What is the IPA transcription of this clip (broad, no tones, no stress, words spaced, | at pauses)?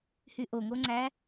hyʔoŋoŋ͡ǀæ